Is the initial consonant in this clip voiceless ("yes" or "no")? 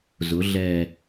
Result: no